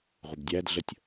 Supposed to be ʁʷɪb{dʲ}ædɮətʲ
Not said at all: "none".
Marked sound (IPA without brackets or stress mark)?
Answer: dʲ